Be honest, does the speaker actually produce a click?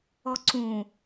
yes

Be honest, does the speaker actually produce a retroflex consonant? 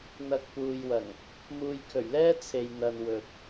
no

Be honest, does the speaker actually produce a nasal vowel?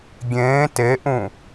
yes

